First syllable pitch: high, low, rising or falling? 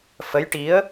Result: rising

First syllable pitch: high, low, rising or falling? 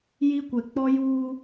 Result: high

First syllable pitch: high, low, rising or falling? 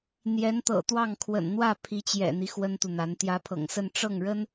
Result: rising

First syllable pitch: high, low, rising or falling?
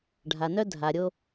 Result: low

